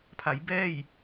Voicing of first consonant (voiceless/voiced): voiceless